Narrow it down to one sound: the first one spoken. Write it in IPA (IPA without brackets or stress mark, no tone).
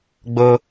ɡ͡b